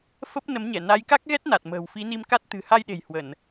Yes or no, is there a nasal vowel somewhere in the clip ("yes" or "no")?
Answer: no